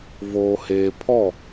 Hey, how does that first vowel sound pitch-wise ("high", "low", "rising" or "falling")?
low